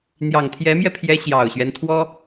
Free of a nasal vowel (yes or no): yes